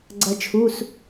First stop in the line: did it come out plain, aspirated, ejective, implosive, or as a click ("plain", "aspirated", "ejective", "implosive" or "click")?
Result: click